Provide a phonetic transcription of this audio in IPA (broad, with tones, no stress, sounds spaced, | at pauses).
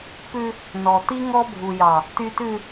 p ʉ˦ | n ɔ˨ t̪ i˦ ŋ ɔ˦ bʱ u˨ j ɑ˨ | t y˨ t ʉ˨